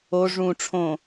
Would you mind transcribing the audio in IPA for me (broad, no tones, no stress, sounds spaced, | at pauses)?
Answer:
o ʐ ũ ʈ͡ʂʰ õ